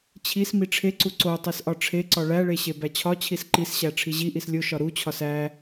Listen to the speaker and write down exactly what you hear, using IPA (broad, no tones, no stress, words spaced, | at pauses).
t͡ɕʰis miʈ͡ʂʰeǀu ǀo tˤisʔɒʈ͡ʂʰeǀɒ ɭæɭe ɕebæt͡ɕʰɒt͡ɕʰis ǃisɕæ ʈ͡ʂʰiʑiʔis lʲo ʃɒɾut͡ɕʰɒs æ